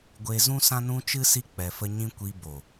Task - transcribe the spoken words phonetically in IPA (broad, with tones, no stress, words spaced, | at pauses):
ɡʷe˧zũ˦ sã˦nũ˦t͡ʃɨ˦si˦ k͡pɛ˧fə˦ɲĩ˦ kʷi˧bo˨